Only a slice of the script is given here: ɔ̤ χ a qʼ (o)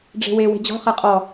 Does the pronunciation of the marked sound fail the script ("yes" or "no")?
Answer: yes